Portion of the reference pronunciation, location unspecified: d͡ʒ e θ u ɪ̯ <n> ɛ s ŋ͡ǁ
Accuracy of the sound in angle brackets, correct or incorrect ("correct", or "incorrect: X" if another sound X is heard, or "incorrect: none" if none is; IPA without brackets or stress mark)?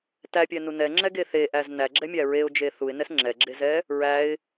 correct